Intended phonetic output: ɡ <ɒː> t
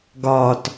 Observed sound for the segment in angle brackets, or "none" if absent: ɒː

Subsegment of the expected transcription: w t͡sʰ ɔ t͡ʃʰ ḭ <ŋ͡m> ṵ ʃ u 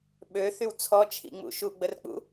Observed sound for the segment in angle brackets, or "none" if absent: ŋ͡m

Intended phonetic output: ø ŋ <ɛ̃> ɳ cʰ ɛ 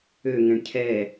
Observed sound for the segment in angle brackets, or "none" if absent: ɛ̃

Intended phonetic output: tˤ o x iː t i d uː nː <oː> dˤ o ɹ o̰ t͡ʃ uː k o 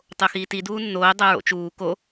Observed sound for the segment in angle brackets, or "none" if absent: oː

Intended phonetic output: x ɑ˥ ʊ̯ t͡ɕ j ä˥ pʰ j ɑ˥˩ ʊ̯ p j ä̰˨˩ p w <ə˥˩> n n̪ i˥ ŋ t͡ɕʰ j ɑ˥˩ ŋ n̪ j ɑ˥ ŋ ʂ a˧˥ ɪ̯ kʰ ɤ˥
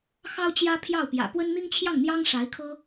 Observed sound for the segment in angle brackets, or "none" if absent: ə˥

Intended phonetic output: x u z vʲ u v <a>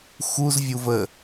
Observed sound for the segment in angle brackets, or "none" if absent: ə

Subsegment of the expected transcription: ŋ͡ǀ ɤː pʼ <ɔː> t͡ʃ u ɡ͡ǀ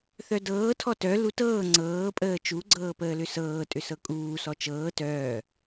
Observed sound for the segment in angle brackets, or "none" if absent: əː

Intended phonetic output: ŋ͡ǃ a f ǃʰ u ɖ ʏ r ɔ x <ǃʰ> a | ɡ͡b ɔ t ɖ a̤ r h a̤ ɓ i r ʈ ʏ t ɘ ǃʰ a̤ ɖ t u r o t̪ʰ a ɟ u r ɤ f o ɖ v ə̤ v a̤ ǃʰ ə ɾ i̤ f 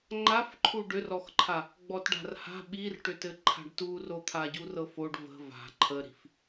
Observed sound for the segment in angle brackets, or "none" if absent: ǃʰ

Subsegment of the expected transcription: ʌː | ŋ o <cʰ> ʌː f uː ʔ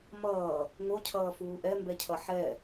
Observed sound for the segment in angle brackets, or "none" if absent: cʰ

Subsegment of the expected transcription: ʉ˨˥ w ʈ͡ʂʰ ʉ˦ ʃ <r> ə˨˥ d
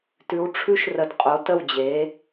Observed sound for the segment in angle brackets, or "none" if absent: r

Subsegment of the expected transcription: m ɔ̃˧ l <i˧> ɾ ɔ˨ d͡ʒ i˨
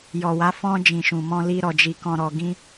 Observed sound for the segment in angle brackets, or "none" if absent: i˧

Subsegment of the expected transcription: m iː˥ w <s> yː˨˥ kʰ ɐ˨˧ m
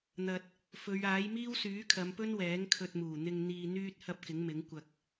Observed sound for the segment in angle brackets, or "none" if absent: s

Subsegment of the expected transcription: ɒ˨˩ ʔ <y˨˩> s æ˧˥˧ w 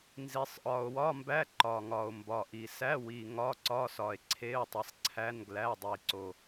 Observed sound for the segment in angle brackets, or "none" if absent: i˨˩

